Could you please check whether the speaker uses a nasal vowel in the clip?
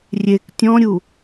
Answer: yes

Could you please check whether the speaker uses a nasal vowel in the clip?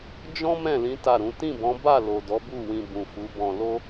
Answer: yes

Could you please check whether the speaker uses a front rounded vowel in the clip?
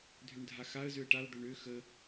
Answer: yes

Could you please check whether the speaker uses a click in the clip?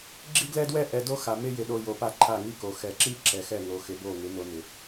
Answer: yes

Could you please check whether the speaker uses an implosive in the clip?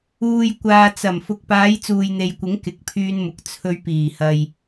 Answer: no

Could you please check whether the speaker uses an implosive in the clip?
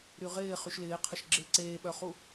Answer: yes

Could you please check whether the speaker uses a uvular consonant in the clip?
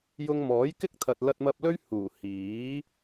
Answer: no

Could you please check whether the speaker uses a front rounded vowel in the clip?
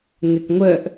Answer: yes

